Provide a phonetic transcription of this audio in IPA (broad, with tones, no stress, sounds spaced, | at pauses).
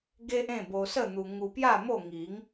ɡ e˦ ʔ ẽ˥˧ b o˧ s ə˥˧ n̪ u˧ ŋ u˧ p j a˥˧ m o˥˧ ŋ i˨˦ ŋ